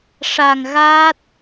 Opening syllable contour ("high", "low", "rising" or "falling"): low